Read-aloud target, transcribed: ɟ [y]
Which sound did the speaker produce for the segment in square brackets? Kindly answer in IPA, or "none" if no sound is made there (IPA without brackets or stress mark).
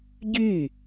y